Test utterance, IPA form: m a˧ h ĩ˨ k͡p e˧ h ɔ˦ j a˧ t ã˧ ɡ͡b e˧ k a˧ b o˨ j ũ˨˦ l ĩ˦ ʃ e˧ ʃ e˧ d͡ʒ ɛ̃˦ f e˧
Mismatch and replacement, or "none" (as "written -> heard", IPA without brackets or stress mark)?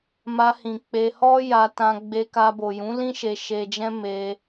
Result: f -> m